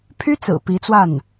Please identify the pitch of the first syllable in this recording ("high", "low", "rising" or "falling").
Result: high